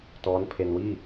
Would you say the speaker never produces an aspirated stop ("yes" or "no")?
no